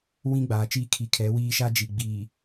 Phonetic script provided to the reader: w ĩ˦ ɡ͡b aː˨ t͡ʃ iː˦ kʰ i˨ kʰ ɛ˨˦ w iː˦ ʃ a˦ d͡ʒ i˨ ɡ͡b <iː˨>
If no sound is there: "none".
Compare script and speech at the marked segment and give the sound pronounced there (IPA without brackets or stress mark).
iː˨